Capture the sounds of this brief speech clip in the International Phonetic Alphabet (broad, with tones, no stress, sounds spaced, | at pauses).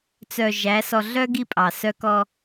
t͡s œ˨ ʒ æ˨˦ s ɔ˨ ɮ œ˦ ɡ i˦ pʼ ɑ˨ s œ˦ k ɔ˦